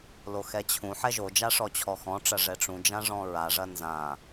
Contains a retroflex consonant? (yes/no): yes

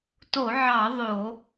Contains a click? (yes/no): no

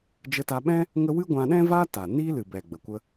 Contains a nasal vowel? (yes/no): yes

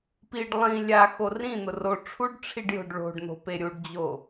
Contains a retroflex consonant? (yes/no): yes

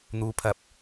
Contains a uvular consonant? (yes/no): no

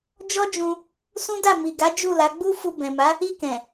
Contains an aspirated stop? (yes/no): no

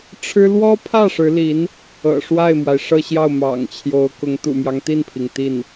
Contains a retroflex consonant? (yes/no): yes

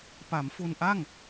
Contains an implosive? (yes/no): no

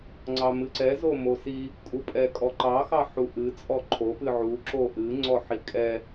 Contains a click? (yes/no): yes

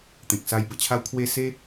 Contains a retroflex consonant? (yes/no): no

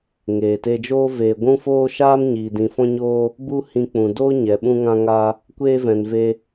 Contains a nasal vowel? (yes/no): yes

